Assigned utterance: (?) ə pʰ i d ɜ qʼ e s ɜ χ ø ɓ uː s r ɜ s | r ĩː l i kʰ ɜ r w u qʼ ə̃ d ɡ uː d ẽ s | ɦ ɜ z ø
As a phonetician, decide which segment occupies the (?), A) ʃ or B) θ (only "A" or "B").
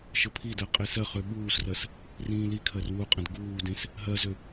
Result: A